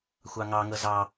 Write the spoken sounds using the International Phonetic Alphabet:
xʷ ɑ ŋ ɑ ŋ ɤ z ɑ

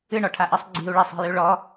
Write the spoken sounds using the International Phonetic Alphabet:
ɨ ɳ ɔ ʈʰ a ʔ ɜ sˤ ɡ͡ǀ i̤ u̯ ɭ ɛ sˤ i̤ j ʉ ɭ ɔ

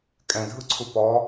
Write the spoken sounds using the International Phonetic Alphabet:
kʼ ɛ̃ dʱ ɯ ǀʰ u p ɔ

